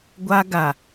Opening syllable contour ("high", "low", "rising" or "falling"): high